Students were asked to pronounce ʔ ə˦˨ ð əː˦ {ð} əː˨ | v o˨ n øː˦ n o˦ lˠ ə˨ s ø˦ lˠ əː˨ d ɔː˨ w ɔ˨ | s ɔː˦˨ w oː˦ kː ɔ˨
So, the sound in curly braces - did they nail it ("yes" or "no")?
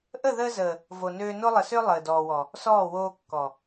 no